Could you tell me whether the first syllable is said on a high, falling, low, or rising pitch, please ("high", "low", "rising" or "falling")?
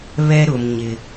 high